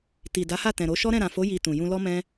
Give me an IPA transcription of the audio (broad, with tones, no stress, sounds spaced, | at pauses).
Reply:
t i˨ d a˨˦ h a˦˨ t ɛ̃˨ ɾ o˨˦ ʃ ɔ˦ ɾ ɛ̃˦˨ ɾ ã˨ f o˨˦ j i˧ t ũ˨ j ũ˧ l ɔ˦ m ɛ̃˦